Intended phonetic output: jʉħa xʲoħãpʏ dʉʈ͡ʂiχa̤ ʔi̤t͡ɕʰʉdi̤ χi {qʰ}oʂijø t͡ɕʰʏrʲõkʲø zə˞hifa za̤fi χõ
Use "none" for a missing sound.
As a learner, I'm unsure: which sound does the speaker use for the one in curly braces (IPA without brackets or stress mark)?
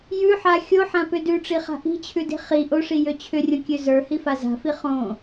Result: ʔ